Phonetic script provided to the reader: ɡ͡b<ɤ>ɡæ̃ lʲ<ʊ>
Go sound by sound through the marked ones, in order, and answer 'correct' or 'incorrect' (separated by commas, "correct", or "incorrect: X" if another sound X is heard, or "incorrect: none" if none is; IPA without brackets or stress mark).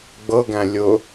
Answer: correct, correct